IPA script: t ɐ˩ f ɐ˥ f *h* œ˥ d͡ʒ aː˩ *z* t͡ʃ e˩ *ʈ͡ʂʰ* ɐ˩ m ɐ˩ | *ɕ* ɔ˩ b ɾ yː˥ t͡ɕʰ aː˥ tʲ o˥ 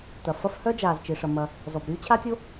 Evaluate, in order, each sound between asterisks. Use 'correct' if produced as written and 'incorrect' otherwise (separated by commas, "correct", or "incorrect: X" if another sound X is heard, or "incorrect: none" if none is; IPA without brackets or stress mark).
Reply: correct, correct, incorrect: ʂ, incorrect: z